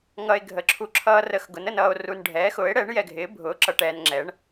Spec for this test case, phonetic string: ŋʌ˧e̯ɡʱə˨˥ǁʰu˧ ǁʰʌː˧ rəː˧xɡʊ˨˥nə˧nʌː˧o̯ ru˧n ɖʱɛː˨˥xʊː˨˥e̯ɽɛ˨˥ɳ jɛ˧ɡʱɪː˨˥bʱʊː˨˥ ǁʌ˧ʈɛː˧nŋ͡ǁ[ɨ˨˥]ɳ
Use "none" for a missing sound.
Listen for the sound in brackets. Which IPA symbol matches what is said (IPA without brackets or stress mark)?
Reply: ɛ˨˥